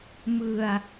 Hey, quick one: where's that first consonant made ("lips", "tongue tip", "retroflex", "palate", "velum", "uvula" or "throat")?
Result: lips